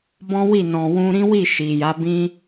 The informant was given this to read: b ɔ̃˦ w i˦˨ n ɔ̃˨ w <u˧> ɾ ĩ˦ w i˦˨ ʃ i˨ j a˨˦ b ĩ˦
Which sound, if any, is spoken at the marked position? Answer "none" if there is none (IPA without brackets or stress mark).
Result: ũ˧